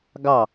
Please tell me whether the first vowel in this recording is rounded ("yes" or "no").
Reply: no